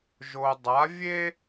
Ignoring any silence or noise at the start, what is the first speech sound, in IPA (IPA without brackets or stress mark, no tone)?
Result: ʒ